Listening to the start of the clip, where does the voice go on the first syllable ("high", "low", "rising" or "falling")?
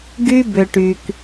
high